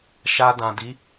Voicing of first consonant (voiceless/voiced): voiceless